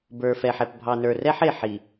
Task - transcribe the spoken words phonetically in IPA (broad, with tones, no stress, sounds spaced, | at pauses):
b ə˞˨ f ɛ˨ ħ ɛ˨ p bʱ ɑ˨ n ə˞˨ r ɛ˦ ħ e˨ ħ i˨